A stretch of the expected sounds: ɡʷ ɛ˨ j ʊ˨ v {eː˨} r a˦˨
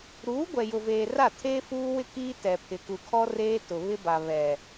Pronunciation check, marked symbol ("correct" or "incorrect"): correct